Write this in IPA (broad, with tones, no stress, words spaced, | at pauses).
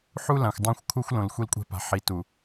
ħu˦ lã˨xʷdˤõ˦˨xʷkʰu˦xʷlõ˨l xʷi˦lkʷʼɛ̤˦pa̤˨ ħi˨tu˨